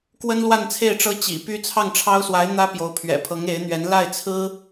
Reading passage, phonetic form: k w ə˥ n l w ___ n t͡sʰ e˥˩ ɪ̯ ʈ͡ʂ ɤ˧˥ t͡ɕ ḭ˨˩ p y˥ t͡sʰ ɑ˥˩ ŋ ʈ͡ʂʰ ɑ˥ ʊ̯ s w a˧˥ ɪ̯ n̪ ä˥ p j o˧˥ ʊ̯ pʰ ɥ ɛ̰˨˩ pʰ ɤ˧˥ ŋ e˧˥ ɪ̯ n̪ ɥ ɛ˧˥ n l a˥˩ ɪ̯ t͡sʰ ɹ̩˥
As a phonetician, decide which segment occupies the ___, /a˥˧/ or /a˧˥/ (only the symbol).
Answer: a˥˧